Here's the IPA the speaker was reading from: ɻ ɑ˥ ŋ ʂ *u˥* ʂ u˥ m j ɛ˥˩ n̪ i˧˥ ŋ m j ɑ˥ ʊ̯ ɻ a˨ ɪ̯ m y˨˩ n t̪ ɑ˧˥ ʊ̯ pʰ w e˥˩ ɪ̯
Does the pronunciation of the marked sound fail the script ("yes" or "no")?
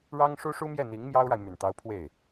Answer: no